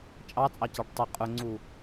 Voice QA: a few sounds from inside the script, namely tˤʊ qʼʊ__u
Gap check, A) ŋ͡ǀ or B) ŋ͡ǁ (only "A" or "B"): A